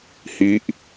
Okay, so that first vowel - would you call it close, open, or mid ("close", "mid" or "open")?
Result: close